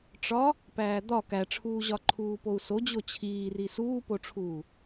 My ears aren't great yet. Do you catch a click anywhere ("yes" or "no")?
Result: yes